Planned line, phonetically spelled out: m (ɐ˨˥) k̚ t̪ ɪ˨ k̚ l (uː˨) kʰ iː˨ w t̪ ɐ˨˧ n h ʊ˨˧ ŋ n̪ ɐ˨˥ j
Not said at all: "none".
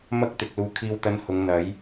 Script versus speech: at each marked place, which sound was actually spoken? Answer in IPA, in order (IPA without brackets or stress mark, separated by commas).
ɐ˥, uː˨